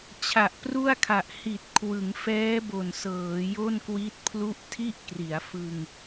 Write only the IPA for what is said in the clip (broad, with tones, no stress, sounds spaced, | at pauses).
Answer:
t͡ɕʰ a˨˩ ʔ p r u˥˩ a̯ kʰ a˨˩ ʔ h i˨˩ t̚ kʰ w ɯ˩˦ ŋ f ɛː˦˥ b o˨˩ n s ɤː˩˦ j o˥˩ n k w i˦˥ t̚ pʰ l u˥˩ ʔ tʰ i˥˩ ʔ k r i˩˦ a̯ f ɯ˧ ŋ